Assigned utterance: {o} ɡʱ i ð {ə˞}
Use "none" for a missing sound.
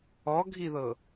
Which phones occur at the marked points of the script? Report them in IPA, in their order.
ɔ, ɤ

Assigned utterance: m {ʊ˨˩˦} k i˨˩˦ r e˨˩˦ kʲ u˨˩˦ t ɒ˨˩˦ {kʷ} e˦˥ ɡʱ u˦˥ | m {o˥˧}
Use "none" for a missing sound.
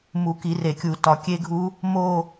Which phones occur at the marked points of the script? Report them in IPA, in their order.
u˨˩˦, kʲ, o˥˧

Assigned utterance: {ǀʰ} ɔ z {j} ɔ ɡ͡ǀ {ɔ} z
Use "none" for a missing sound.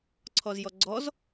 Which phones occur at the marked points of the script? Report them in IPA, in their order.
ǀʰ, j, ɔ

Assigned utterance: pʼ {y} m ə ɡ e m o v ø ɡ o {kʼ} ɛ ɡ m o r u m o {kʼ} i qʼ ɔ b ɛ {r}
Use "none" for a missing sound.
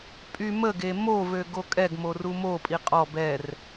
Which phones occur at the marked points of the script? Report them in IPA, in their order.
y, kʼ, pʼ, r

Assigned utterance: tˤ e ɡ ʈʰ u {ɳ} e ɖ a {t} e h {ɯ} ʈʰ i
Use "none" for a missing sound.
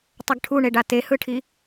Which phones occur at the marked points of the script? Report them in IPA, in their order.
ɳ, t, ɯ

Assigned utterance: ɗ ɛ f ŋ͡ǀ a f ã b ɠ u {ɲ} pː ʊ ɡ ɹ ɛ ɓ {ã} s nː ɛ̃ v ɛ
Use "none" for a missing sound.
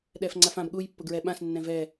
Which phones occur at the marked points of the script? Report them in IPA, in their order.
j, ã

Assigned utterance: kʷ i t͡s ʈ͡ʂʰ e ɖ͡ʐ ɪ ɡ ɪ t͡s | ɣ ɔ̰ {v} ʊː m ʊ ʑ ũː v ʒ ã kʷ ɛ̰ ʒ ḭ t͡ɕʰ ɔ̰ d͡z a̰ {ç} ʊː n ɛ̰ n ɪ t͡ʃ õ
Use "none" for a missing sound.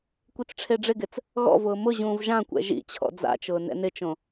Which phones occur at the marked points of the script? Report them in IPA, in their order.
v, t͡ʃ

